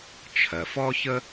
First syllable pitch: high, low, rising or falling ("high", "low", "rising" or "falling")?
low